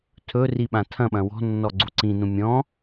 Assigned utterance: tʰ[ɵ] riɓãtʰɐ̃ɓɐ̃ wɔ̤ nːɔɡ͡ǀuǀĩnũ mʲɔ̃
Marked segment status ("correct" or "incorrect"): correct